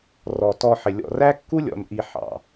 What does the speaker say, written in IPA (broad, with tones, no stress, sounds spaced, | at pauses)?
r ɔ˩ t ɔ˨ ħ ɪ˩ lʲ ɔ̰˨ r æ˥ kː u˥ lʲ ɔ̰˨ n ʔ i˨ ħ ɑ̰˩